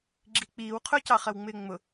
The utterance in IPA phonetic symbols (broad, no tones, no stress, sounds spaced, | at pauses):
ɡ͡ǁ i k͡p iː w qʰ ʊ c ɑ χ ɜ w ŋ͡m ɪː ŋ͡m ʊ